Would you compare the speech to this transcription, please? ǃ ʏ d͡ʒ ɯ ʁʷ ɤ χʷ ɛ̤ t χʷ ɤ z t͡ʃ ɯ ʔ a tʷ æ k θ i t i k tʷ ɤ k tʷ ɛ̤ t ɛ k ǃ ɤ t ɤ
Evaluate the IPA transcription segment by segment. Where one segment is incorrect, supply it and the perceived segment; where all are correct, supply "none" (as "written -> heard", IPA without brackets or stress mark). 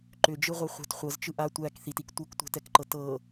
none